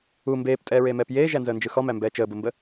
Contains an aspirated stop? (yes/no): no